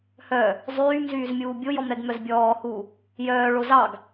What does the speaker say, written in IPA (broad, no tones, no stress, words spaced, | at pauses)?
hœː | zˤyːmzyːzmʲuː bʲojɔmɾɛɡmœz bʲɔːhuː | jœːɭo zɑɡ